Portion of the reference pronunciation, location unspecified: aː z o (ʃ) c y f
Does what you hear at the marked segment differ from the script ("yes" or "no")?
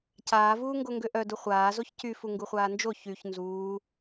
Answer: yes